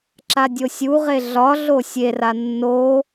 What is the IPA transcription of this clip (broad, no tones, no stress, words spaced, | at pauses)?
ǁadʲosʲuʁe ɮɒɮo sʲera nːo